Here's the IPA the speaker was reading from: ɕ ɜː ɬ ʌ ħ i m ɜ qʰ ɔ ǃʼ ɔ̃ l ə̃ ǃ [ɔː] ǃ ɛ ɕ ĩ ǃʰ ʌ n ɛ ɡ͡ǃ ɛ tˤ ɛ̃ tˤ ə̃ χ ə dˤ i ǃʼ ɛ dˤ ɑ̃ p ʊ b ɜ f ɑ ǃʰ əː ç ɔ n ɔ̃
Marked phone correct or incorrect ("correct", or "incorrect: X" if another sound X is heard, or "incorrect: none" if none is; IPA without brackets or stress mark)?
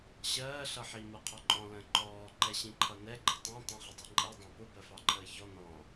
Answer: correct